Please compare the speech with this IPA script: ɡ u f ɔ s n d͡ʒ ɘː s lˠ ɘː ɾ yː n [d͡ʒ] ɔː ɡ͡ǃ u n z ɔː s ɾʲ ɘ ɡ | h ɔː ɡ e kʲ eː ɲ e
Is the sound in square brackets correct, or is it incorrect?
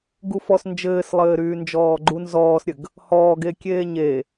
correct